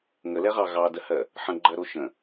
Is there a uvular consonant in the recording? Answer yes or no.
yes